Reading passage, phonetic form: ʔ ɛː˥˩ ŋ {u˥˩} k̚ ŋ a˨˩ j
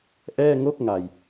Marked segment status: incorrect: o˥˩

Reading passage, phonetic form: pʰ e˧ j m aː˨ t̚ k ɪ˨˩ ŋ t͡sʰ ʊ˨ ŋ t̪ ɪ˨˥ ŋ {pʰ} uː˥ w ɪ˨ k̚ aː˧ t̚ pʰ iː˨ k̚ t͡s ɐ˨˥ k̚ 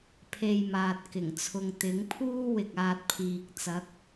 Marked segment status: correct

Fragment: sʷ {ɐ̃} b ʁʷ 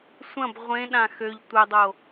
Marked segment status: correct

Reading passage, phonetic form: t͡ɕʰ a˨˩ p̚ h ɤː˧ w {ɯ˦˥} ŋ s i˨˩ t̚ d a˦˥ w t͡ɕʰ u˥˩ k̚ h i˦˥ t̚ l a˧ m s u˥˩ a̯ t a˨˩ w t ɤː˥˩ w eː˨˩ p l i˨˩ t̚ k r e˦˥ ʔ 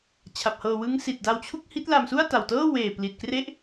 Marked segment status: correct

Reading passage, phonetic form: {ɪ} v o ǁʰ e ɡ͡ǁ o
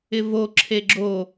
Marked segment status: correct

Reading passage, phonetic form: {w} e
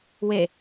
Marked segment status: correct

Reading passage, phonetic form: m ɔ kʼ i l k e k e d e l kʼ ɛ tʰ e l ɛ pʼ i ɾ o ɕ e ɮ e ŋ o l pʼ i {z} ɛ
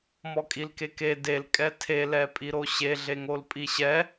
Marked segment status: incorrect: ɕ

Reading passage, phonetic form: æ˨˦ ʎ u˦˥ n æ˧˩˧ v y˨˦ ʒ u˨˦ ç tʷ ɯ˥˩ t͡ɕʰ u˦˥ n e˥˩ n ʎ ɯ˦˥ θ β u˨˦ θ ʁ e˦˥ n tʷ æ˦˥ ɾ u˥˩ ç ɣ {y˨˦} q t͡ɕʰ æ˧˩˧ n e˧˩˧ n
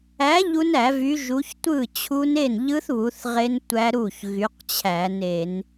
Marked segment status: correct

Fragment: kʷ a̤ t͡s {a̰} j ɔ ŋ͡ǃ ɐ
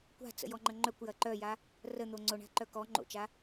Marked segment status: incorrect: ə̰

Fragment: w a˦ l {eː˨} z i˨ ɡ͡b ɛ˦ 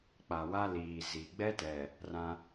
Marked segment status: incorrect: iː˨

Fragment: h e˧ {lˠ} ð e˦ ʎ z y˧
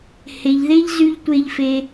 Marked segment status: incorrect: ʎ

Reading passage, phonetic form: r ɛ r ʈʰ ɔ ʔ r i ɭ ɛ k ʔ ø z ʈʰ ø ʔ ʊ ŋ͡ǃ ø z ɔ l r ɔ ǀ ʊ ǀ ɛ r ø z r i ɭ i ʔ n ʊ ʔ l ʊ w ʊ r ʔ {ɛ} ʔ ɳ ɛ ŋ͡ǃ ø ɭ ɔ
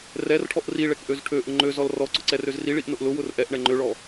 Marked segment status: correct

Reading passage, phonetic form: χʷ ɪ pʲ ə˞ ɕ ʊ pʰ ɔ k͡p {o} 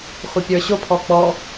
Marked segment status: incorrect: ɔ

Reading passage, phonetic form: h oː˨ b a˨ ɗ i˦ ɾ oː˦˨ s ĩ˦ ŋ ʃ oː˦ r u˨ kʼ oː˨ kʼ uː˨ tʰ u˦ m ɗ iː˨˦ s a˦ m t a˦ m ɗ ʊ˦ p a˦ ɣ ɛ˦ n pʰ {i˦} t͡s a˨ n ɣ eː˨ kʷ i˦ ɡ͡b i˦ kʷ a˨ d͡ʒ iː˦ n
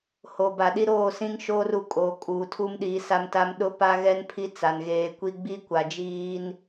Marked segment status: correct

